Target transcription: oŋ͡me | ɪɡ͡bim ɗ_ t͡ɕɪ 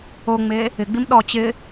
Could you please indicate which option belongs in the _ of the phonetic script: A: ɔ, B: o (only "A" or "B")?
A